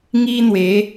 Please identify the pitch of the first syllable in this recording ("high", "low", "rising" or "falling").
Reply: high